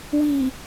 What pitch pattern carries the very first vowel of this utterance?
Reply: low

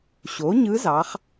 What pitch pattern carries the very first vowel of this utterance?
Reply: rising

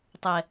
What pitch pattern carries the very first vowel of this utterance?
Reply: low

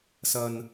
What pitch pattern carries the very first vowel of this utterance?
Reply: low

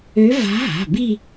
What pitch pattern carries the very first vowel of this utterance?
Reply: rising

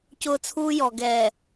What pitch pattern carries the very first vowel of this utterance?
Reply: high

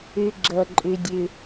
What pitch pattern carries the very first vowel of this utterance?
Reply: low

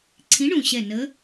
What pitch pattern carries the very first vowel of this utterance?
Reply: rising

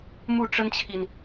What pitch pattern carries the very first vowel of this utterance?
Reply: falling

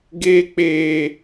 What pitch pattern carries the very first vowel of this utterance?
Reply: high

